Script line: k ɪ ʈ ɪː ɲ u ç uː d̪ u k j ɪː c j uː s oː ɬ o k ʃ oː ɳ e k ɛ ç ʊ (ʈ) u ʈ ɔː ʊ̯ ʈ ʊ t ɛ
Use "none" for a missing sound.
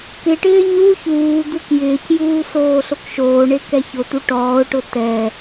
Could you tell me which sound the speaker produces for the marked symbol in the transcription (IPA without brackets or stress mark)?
t̪